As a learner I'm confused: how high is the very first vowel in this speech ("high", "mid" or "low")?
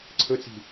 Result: mid